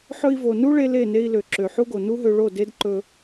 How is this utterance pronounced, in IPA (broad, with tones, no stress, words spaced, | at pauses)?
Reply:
ħɵ˧i̯vo˨ nu˦ɭe˧ le˦˨ne˧i̯ lø˨ǁø˨ħu˦ɡo˨ nu˦ɦø˧ɭo˦˨ de˦dǃɵ˧